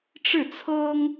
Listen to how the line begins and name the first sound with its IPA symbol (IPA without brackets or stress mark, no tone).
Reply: ʈ͡ʂ